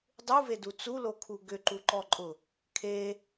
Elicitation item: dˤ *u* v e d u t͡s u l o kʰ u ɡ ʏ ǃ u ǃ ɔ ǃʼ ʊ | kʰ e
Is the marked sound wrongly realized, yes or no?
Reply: no